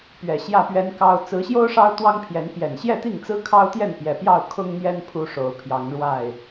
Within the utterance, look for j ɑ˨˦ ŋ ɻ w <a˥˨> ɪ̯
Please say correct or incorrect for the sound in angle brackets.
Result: correct